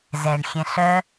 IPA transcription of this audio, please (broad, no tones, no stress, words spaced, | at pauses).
zɛɳxʲɛ̃ɬœ